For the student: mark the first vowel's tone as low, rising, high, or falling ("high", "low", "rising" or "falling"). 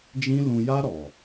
high